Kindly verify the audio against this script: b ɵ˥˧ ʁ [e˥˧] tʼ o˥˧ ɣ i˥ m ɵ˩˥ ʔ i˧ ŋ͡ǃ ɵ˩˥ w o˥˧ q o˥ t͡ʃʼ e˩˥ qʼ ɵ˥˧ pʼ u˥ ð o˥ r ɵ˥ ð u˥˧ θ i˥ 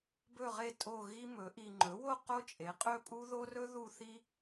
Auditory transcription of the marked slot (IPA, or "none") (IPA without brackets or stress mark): e˥˧